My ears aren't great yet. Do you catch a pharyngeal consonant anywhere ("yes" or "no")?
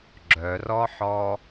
yes